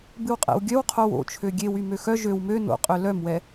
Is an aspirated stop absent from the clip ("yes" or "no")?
no